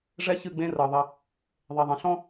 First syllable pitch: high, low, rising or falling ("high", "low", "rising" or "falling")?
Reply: high